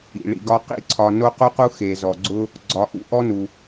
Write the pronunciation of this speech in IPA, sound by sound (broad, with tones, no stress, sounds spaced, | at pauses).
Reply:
ḭ˩ ɭ ḭ˨ ɡ ɒ˦ q ḭ˥ ǀʰ ɒ˨ n o˥ q u˥ q u˥ x e˩ z ɔ˩ ɡ͡ǀ ʊ˦ | ɡ͡ǀ ɒ˨ ʔ ṵ˦ ʔ ɔ˥ n u˩